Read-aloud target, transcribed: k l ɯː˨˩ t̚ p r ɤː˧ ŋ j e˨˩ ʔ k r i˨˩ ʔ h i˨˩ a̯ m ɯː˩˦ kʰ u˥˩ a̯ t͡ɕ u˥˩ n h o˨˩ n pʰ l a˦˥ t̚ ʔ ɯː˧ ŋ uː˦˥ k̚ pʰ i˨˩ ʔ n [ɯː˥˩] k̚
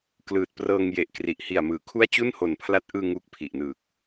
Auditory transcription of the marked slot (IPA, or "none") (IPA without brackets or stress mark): ɯː˨˩